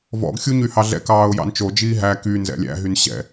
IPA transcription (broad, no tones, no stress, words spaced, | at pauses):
vɔ̰ɡxʲuɲyhɑ ɮɛ̰kɑːʊ̯ jɑ̰nt͡ʃod͡ʒiː ɦæ ky nzɛ̰lʲæ̰ ɦynɕɛ̰